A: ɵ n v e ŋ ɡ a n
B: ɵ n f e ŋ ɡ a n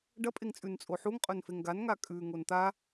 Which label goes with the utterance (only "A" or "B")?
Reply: B